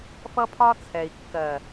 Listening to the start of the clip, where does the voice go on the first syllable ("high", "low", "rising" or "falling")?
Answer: high